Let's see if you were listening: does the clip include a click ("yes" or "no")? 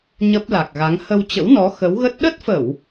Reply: no